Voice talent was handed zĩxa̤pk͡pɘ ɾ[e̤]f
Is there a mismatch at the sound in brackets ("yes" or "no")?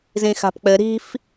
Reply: yes